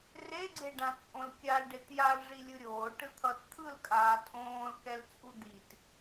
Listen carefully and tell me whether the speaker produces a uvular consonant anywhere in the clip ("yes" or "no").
no